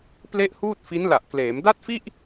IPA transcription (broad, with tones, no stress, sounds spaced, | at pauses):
p l e˥˩ ʔ h uː˥˩ t̚ f i˦˥ n l a˨˩ ʔ k l eː˩˦ m d a˥˩ t̚ f i˥˩ ʔ